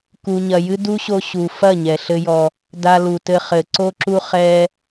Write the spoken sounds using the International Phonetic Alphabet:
k u˧ ɲ ɐ˧ j ɨ˦ d u˦ ɕ o˧ ɕ u˨ f ɐ˦˨ ɲ ɛ˨ ɬ ɘ˦ j ɔ˧ | d a˧ l u˨ t ɘ˧ χ ɘ˨ ǀ o˧ ǁ u˧ χ ɛ˧

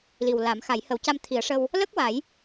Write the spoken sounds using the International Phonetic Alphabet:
l i˨˩ w l a˨˩˦ m x a˨˩˦ j h ə˨˩˦ w c a˧ m t̪ʰ i˨˩˦ ə̯ ʂ ə˧ w | l ə˦˥ k̚ w a˨˩˦ j

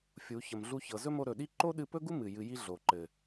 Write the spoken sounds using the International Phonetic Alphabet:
fʲ u˨˦ ç ə˨ m ɮ u˧ ç ɤ˨ z ɵ˦ m o˧ ɾ ɵ˨ ɗ i˦ ǃ o˦ ɗ ɨ˧ p ɵ˦ ɡ u˦ m ɨ˨ j ɨ˧ j i˦ ɮ o˨ ǃ ɘ˨

